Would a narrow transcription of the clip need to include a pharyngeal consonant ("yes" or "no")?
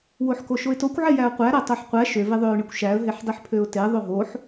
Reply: yes